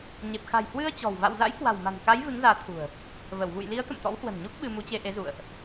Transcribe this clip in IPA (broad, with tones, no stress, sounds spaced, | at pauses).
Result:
ɲ e˨˩ p̚ x a̤˨˩ j h w ɨ˧ ə̯ t͡ɕ ɔ̤˨˩ w v a̰˧˨ w z a̰˧˥ j k w a̤˨˩ w m a̤˨˩ n k a˨˦ j v ɨ˨˦ ŋ z aː˨˦ t̪ʰ ṳ˨˩ ə̯ | v ə˧˩ w v ṵ˧˨ j l i˨˦ ə̯ t̪ ə̰˧˨ m t̪ ɔ̰˧˥ w h w ə̤˨˩ n ɲ u˦˥ k̚ ɓ ɨ˧ m u˨˦ t͡ɕ e˧ ʔ e˨˦ z ṵ˧˨ ə̯ ʔ